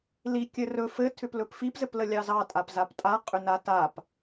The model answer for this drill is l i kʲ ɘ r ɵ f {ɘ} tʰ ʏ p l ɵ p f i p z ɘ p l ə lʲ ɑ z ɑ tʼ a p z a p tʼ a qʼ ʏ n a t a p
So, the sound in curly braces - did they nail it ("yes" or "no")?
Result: yes